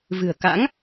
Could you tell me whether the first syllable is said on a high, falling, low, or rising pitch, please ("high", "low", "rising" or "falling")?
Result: low